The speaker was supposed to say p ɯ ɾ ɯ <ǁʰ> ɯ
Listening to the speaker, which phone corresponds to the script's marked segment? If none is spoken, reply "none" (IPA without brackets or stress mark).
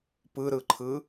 ǃʰ